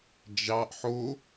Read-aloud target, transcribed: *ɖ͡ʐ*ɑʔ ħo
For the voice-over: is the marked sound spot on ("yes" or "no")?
no